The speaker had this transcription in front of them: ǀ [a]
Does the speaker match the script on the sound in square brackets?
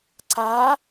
yes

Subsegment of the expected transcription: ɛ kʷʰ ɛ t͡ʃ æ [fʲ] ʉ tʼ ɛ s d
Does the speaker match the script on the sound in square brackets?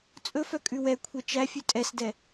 yes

